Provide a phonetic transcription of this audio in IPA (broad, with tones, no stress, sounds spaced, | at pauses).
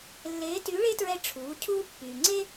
lː eː˧˥ t y˧˥ ɭ e˥ t ɹ ɛ˧ ʈ͡ʂʰ uː˩˧ cʰ uː˧ pː yː˩ ŋ͡ǀ e˥